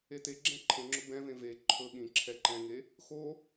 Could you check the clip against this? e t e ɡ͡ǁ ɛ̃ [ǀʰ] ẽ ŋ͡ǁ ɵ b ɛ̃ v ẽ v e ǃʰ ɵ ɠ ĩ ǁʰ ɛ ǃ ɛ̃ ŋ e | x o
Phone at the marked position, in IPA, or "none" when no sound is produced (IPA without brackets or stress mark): ǃʰ